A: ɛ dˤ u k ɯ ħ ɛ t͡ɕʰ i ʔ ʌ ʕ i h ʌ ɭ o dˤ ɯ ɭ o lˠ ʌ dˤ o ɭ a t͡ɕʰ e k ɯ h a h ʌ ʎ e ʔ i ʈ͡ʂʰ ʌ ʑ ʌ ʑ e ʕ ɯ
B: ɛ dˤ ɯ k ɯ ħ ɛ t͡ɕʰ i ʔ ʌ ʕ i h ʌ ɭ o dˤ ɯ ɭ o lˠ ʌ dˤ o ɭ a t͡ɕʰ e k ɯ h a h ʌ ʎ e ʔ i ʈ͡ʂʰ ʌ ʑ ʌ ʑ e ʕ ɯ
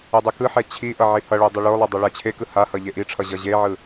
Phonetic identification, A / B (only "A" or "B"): B